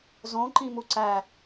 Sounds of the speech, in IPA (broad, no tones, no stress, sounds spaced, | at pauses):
z õ ǃ ĩ m u ǀ æ